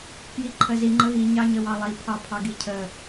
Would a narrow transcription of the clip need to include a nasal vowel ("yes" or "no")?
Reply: no